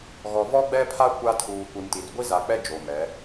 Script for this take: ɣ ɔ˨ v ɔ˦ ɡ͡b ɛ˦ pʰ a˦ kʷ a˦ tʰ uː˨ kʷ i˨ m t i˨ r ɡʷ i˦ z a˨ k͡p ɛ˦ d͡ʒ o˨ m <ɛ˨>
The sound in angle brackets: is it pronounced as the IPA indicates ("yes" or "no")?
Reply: no